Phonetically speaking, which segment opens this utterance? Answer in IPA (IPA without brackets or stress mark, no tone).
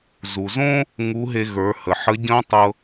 z